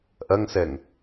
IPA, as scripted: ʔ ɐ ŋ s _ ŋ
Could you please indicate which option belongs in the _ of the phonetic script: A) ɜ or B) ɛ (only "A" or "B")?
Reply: B